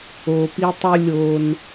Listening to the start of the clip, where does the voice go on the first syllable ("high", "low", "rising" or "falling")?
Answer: low